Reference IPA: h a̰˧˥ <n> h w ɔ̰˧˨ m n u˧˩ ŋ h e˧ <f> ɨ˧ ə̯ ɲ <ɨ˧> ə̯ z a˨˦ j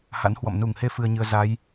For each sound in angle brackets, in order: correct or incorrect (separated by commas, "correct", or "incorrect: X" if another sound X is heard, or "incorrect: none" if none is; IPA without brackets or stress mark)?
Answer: correct, correct, correct